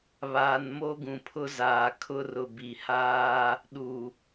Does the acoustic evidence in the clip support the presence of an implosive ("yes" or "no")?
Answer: yes